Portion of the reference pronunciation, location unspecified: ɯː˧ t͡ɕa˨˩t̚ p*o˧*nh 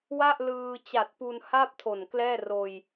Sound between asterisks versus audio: incorrect: u˧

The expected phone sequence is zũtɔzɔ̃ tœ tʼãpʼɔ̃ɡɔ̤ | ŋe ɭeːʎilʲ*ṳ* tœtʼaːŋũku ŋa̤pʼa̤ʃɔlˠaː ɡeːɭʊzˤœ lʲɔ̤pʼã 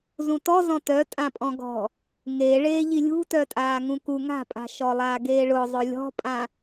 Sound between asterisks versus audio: correct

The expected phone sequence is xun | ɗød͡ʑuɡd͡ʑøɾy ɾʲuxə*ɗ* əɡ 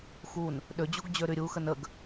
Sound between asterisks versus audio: incorrect: n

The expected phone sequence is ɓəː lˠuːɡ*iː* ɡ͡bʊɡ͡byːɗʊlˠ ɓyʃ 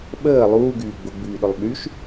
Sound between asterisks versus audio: incorrect: yː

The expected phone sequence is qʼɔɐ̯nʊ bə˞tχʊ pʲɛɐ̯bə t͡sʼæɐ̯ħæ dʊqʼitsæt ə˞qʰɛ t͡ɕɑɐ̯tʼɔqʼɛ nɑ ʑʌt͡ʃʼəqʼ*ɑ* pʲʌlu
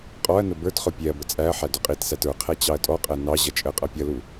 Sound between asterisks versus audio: incorrect: ʌ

